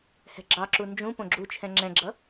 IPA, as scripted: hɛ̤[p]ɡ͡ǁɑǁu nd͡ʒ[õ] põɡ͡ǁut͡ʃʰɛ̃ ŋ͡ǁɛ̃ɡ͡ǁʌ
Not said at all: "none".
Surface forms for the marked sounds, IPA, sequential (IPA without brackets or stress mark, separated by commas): none, ũ